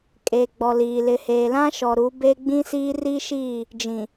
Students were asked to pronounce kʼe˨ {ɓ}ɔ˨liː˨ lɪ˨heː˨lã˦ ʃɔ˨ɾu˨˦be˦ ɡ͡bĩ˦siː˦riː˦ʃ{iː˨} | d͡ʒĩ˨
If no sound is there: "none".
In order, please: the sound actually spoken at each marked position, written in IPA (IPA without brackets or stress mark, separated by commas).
ɡ͡b, iː˦˨